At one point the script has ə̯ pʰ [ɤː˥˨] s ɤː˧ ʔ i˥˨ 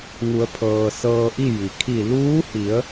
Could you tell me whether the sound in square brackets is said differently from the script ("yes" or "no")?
yes